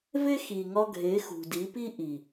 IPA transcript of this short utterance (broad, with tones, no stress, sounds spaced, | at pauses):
v e˦ x i˨ ŋ ɒ˧ ɡʱ e˨˦ x ṳ˨ d i˨˦ p i˦ ʔ i˨